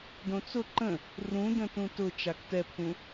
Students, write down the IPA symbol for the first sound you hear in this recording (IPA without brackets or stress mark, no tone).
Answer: d